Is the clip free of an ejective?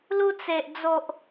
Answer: yes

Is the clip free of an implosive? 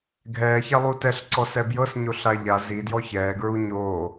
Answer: yes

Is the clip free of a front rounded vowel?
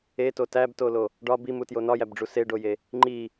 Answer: yes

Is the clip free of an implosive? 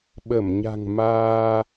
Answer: no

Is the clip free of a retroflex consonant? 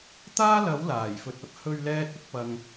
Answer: yes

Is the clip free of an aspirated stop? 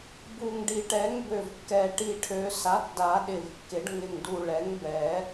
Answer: no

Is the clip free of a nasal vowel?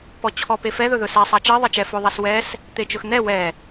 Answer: yes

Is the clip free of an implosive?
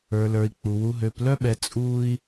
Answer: no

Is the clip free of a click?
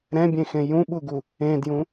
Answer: yes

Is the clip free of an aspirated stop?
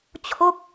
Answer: no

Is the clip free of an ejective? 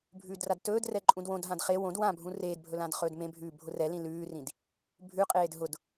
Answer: no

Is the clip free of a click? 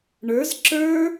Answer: no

